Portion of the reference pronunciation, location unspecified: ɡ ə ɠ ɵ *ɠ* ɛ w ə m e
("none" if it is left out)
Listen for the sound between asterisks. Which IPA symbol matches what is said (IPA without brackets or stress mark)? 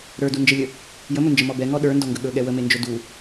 ɠ